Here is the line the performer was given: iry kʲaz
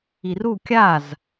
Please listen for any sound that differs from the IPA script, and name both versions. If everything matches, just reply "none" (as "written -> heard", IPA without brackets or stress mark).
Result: y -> u